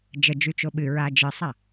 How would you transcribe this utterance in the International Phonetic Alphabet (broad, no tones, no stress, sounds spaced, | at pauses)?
d͡ʒ ə d͡ʒ y t͡ʃ o ɓ ɨ ɹ a d͡ʒ ɨ sˤ a